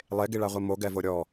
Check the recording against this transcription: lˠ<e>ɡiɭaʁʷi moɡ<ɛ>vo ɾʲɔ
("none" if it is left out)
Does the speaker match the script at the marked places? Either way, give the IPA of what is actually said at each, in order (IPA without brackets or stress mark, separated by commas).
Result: e, ɛ